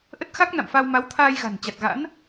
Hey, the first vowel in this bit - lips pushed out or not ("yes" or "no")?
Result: no